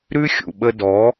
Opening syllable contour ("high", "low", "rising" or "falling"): high